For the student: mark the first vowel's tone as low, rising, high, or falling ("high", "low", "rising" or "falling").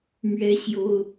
high